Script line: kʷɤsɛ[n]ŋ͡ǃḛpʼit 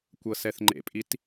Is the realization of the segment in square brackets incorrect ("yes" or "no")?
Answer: yes